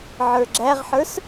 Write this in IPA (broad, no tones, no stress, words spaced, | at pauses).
ʕə˞ɡ͡ǁæʁħə˞s